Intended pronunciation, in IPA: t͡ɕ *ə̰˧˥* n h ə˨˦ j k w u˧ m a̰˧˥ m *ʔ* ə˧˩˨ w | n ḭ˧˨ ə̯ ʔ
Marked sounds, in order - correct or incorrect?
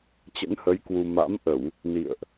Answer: correct, correct

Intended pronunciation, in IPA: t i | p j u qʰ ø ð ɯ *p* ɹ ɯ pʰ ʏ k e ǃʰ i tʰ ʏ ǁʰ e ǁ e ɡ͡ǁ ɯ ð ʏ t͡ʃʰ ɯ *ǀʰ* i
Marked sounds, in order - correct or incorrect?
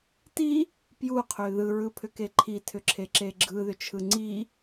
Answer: incorrect: none, incorrect: ŋ͡ǀ

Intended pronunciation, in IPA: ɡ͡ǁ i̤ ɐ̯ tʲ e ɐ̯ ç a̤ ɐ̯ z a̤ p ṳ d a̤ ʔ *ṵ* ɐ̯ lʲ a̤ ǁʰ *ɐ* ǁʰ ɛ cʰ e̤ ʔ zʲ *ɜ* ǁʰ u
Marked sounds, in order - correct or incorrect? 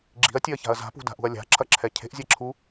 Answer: incorrect: ṳ, correct, incorrect: ɛ

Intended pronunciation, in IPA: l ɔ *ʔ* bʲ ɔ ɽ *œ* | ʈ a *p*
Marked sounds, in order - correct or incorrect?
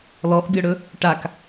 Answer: correct, incorrect: ɵ, incorrect: k

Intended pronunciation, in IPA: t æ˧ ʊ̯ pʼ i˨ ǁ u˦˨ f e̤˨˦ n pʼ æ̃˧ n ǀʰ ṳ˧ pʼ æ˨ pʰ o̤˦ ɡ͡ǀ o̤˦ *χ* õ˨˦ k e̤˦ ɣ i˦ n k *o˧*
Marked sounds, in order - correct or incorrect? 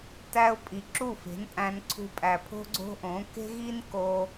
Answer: incorrect: ʔ, correct

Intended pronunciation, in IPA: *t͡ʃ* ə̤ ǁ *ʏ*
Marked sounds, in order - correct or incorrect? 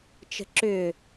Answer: correct, correct

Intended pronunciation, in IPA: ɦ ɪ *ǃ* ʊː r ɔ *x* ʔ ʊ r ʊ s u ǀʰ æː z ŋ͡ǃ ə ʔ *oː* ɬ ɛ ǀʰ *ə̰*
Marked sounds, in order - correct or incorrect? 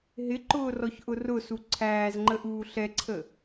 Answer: correct, incorrect: ç, incorrect: uː, incorrect: ə

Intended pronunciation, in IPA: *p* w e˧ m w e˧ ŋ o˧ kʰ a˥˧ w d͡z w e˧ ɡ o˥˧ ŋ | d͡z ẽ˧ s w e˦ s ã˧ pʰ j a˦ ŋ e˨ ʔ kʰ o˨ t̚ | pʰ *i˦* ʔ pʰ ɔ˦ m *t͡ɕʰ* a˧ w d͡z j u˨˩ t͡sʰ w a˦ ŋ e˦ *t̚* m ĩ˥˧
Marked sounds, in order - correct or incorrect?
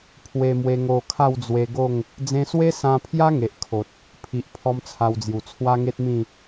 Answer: incorrect: pʰ, incorrect: i˨, incorrect: t͡sʰ, correct

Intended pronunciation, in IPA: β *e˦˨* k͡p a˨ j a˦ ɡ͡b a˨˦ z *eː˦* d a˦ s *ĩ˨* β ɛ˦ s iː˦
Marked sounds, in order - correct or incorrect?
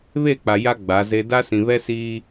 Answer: correct, incorrect: e˦, correct

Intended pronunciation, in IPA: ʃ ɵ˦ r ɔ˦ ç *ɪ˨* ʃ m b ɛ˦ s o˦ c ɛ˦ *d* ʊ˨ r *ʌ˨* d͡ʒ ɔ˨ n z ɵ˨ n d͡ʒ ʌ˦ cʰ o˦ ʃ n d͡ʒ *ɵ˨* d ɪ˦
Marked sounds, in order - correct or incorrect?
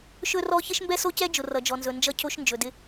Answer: incorrect: ɪ˦, incorrect: d͡ʒ, correct, correct

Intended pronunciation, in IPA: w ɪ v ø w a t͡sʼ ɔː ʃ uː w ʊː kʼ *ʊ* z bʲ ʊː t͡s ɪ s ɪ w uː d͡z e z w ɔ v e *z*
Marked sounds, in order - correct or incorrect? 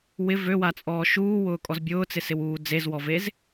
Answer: incorrect: ɔ, correct

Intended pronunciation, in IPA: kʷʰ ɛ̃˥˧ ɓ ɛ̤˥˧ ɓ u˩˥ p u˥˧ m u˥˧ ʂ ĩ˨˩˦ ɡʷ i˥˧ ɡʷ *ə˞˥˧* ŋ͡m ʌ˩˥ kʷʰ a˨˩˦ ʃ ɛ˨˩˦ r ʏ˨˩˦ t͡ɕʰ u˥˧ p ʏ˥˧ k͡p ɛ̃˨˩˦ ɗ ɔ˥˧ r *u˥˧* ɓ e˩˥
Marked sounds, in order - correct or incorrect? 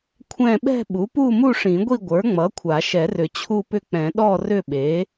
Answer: incorrect: ə˞˩˥, incorrect: ʏ˥˧

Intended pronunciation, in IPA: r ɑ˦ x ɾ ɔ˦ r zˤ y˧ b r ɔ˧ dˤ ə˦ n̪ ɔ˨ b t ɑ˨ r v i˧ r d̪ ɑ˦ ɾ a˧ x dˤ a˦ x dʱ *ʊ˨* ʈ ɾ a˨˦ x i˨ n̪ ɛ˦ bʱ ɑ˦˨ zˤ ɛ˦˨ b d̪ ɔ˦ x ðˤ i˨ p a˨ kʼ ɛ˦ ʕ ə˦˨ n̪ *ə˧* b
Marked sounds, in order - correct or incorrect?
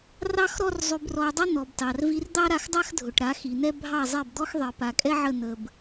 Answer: correct, correct

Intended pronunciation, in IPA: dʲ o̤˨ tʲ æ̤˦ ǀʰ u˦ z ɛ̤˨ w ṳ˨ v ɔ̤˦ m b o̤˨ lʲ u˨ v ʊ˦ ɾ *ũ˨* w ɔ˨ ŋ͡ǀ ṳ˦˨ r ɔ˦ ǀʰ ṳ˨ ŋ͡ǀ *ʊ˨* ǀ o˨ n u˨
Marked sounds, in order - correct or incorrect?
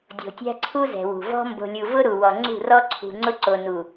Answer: incorrect: u˨, incorrect: ʊ˦

